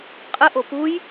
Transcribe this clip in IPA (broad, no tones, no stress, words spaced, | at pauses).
qʼəʔo puj